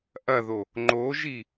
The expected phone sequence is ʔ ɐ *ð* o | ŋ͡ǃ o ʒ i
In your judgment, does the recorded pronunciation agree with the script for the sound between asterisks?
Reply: yes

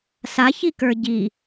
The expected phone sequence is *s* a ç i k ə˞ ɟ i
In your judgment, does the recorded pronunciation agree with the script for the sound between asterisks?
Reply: yes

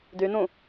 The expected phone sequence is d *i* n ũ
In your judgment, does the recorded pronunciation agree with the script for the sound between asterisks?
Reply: no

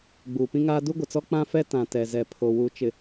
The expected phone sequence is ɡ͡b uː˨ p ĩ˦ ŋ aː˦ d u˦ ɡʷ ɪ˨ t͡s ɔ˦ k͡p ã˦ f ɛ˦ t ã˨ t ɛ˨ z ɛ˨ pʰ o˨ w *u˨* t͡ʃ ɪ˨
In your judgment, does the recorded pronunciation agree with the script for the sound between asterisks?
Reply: yes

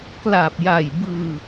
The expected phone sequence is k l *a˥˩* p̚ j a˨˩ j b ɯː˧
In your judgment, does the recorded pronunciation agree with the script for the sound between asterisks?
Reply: no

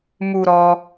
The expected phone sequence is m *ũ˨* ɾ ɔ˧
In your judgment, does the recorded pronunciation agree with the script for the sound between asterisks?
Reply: no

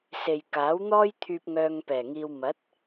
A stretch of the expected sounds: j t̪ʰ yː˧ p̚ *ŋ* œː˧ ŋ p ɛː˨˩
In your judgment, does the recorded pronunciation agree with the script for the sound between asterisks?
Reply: yes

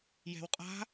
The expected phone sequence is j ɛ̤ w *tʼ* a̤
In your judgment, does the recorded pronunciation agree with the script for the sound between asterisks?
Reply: no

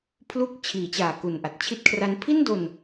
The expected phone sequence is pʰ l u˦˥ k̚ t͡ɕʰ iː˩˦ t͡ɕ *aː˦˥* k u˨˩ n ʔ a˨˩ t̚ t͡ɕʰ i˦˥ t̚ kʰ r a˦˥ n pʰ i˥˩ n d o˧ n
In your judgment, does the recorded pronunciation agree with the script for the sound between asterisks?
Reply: no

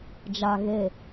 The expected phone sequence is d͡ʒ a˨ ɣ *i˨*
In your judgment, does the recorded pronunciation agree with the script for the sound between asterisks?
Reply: no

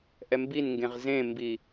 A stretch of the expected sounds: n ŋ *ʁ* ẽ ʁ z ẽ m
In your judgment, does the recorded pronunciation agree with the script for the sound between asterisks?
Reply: no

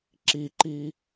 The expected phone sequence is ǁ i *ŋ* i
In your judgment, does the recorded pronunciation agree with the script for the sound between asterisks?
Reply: no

